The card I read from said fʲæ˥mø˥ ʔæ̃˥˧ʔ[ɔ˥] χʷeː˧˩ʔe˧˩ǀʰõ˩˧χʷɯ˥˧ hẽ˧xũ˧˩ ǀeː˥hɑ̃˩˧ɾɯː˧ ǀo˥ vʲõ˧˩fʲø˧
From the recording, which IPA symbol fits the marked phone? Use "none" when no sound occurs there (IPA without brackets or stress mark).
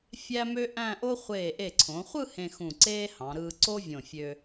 o˥